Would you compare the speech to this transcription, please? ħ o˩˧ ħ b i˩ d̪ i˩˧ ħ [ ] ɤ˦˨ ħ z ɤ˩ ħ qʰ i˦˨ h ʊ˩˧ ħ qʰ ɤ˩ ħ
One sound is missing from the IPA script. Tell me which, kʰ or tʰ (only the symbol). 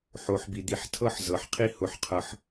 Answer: tʰ